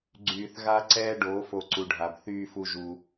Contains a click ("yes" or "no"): yes